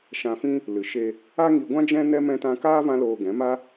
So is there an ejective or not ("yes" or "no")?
no